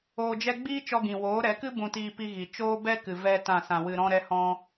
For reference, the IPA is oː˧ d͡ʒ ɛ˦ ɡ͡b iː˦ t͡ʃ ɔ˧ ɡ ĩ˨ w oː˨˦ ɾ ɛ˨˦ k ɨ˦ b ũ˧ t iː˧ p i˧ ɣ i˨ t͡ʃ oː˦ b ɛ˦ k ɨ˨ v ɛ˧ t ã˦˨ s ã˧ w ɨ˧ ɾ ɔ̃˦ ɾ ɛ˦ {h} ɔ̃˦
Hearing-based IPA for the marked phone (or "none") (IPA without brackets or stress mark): h